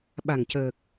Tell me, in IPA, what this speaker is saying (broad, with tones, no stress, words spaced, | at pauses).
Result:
ɓa˨˩ŋcəː˨˩k̚